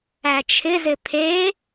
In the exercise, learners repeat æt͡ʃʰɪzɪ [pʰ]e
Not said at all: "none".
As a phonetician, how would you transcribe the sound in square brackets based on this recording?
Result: pʰ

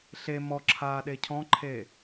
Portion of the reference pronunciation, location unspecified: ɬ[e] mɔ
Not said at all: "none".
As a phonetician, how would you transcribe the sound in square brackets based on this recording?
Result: e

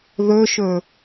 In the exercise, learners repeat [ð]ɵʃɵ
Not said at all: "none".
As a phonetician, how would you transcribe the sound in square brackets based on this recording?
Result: ð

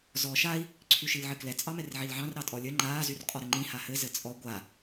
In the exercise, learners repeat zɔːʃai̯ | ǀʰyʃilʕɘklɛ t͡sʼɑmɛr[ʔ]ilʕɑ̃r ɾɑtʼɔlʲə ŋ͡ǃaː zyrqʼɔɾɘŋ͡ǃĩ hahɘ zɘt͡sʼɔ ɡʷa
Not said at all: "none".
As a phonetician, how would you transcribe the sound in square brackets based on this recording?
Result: ʕ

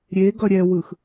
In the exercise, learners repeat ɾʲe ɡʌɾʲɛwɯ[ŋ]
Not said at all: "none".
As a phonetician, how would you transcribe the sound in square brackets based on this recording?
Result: x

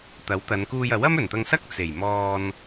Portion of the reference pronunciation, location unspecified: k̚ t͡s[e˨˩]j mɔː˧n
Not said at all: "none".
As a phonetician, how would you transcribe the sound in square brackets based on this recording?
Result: e˨˩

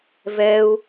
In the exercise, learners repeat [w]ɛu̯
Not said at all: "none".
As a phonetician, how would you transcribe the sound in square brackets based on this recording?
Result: v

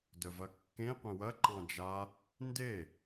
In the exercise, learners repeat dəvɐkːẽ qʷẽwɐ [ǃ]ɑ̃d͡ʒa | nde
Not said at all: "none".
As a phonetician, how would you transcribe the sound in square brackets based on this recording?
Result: ǃ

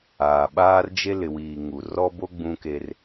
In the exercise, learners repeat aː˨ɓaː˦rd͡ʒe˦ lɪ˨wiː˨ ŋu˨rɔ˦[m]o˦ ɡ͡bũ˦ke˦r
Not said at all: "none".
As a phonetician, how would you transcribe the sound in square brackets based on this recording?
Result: b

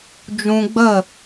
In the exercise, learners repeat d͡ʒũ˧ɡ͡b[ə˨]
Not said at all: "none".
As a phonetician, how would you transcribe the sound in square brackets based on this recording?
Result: ə˦˨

